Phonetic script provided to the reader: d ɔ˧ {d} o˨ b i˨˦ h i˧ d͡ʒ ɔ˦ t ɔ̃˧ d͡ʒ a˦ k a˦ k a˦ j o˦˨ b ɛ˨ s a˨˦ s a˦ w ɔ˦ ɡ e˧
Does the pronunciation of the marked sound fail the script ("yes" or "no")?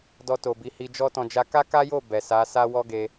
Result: yes